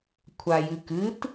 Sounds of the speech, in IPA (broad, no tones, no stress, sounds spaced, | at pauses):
kʷʰ a j ɨ k ɨ t